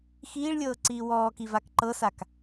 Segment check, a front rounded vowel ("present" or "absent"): absent